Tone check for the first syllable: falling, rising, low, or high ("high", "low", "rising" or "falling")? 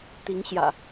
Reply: rising